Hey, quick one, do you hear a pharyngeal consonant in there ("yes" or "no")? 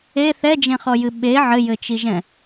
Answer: yes